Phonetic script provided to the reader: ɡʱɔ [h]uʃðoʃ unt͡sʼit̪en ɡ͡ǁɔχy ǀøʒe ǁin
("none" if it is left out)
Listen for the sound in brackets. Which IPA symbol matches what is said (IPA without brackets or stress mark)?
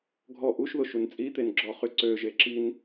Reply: ʔ